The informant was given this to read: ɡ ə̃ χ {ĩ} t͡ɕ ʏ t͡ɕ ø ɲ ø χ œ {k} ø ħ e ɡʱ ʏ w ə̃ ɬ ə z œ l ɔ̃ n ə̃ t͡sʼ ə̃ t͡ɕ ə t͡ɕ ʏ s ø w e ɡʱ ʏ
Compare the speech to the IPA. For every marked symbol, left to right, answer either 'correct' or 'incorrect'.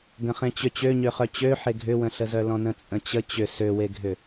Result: incorrect: ẽ, incorrect: t͡ɕ

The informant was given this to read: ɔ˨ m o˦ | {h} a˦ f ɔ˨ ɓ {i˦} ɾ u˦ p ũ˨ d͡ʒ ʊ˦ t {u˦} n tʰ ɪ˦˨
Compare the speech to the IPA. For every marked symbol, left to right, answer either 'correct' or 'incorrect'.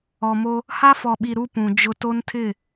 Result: correct, incorrect: i˨, incorrect: o˦

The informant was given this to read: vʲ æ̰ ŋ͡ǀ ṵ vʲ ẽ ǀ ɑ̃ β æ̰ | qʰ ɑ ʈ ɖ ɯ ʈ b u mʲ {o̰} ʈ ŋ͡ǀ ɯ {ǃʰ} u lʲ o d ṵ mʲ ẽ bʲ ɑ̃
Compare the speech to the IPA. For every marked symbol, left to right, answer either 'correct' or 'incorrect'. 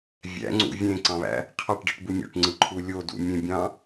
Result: correct, correct

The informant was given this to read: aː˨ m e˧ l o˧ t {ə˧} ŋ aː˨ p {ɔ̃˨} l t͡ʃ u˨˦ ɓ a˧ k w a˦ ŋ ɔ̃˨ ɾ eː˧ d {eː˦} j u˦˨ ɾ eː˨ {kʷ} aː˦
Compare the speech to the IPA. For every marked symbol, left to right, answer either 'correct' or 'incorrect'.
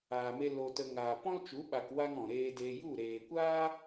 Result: correct, incorrect: ɔ̃˦, incorrect: eː˧, correct

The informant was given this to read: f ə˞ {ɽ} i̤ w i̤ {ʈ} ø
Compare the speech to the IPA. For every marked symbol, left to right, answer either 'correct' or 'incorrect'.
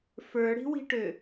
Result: correct, correct

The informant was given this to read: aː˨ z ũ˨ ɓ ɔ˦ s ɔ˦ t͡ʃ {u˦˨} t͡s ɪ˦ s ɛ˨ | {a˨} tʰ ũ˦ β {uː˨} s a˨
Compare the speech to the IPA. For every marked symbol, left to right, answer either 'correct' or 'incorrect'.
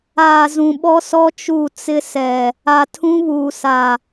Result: correct, correct, correct

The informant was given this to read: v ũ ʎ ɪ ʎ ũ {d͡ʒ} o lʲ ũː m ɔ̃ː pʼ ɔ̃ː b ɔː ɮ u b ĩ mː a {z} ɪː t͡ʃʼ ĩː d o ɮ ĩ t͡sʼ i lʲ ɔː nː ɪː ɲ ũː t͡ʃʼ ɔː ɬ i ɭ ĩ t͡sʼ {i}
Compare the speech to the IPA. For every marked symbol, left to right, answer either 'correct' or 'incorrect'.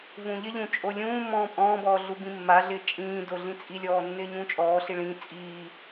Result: incorrect: t͡ʃʼ, incorrect: ɮ, incorrect: iː

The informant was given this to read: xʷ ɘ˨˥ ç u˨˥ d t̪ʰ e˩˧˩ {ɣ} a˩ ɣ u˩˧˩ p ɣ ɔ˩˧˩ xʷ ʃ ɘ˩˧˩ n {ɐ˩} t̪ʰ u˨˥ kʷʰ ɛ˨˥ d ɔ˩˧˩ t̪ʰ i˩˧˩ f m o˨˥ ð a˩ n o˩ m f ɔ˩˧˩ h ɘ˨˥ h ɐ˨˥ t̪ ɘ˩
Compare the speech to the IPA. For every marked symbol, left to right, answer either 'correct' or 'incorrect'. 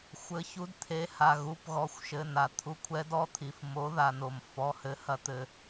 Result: incorrect: h, incorrect: a˩

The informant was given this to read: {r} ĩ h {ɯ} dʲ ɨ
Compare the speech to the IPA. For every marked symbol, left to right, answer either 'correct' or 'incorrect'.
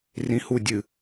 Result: correct, incorrect: u

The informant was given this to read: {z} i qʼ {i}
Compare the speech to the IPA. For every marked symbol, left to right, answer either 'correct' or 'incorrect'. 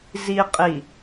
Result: correct, correct

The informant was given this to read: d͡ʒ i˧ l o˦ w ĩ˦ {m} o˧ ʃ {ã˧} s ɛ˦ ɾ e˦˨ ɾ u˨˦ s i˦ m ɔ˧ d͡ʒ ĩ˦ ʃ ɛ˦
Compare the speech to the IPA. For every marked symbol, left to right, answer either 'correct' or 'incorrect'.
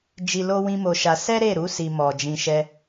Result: correct, incorrect: a˧

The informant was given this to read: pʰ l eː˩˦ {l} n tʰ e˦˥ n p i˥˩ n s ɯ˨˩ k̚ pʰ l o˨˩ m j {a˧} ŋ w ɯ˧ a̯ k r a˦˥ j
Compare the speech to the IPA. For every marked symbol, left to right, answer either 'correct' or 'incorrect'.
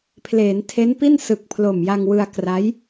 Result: incorrect: none, correct

